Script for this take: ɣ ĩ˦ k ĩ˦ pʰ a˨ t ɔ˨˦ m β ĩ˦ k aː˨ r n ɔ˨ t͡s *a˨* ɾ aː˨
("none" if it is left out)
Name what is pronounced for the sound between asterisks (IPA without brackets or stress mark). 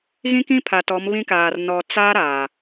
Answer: a˦